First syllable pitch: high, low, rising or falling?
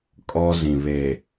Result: high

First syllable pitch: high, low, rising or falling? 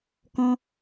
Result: high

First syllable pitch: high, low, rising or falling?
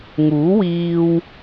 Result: rising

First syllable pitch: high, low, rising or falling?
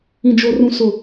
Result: low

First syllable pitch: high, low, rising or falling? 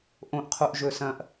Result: high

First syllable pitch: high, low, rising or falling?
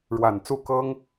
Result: low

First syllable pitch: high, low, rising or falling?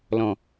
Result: low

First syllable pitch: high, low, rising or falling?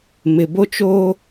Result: low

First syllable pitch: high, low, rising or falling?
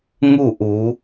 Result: falling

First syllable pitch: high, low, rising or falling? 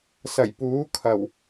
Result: low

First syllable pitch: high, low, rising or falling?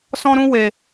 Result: high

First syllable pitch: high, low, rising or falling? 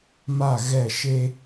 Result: falling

